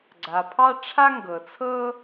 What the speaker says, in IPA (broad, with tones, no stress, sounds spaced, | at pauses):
ɡ͡ǀ a˩ pʰ ɑ˥ ʈ͡ʂʰ a˥ ŋ ɡ ɤ˩ t͡sʰ ɤ˥